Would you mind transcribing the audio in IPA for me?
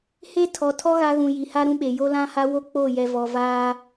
h e˦ tʰ ɔ˨ tʰ ɔ˦ ɣ a˦ ɣ ũ˨ j i˨ h a˦ ɾ ũ˦ ɓ e˨ j o˦ l ã˦ h a˦ w o˦ k͡p o˦˨ j ɛ˨ v ɔ˨ v aː˦

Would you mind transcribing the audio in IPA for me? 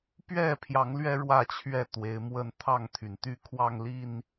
p ɥ ɛ˥˨ pʰ j ɑ˨˦ ŋ l ɥ ɛ˦ ɻ w ä˥˨ t͡ɕʰ ɥ ɛ˥˨ t̪ w e˨˦ ɪ̯ m w ə˦ n t̪ʰ ɑ˥˨ ŋ t̪ʰ y˩ n t̪ y˦ kʰ w ɑ˥˨ ŋ l i˥˨ n

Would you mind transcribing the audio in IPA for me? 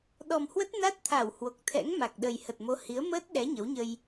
ɗ ɔ˨˩ m h w ə˦˥ t̚ n a˦˥ t̚ t̪ʰ a˧˩ w h w o˨˩ k̚ t̪ʰ ɛ̰˧˥ ŋ m a˨˩ k̚ ɗ ə˨˩ j h ə˨˩ t̚ m o˨˦ h i˨˦ ə̯ m əː˦˥ t̚ ɗ ɛ˨˦ ɲ ə˨˦ w ɲ ə˧ j

